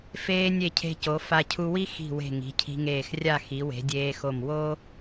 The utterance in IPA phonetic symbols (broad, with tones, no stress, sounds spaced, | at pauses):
f eː˧ nʲ e˧˩ cʰ e̤˧ c o˩˧ f a˧ cʰ u˧ w i˥ x i̤˧˩ w e̤˧˩ ŋ i̤˩˧ cʰ i̤˧ ŋ eː˧˩ x rʲ a˥˧ x i˩˧ w e̤˩˧ dʲ eː˧ x o˧˩ m w o˥